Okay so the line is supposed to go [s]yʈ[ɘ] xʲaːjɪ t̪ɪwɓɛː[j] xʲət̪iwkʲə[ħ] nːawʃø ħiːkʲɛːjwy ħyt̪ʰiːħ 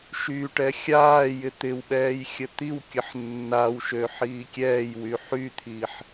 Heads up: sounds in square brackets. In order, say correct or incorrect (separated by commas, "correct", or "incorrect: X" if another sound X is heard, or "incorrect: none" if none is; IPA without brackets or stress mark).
incorrect: ʃ, incorrect: ɛ, correct, correct